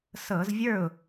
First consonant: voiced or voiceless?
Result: voiceless